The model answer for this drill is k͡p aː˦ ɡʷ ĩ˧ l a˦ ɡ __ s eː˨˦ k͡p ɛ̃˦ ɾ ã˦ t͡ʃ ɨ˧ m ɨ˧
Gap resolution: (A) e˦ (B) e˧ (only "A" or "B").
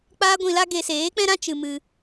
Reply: B